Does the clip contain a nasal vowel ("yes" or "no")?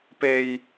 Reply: no